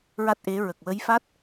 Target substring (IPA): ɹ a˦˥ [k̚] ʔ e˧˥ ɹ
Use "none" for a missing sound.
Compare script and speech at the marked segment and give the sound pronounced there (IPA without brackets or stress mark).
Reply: t̚